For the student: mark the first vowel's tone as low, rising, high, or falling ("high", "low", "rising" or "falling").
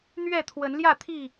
falling